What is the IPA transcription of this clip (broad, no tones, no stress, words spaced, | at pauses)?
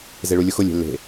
zeɭulʲʊxʊ lʲe̤lːe̤